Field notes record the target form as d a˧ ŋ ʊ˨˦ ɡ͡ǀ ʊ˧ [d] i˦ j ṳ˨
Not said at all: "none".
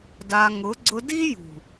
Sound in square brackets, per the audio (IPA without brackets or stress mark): d